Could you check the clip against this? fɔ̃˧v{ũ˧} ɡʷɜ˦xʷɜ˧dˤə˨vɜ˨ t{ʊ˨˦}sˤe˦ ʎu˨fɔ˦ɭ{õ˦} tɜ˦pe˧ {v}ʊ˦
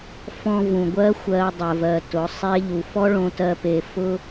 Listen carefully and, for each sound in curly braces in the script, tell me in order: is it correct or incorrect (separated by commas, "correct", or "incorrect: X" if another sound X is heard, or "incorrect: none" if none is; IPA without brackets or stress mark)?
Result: incorrect: ũ˨, correct, incorrect: õ˧, incorrect: f